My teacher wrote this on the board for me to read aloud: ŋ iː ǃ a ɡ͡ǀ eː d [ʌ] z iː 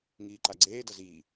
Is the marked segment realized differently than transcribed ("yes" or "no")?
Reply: no